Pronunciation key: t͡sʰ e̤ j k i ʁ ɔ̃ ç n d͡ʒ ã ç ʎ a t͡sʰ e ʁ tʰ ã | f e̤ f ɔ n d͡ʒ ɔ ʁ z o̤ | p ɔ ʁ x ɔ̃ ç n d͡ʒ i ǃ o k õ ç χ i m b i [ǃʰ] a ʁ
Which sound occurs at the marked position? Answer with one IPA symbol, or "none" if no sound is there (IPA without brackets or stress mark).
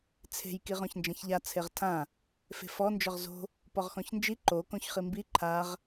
ǃʰ